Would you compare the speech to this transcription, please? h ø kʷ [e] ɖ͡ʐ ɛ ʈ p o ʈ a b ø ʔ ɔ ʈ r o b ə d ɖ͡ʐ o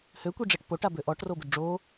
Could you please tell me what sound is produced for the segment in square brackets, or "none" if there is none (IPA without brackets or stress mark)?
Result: i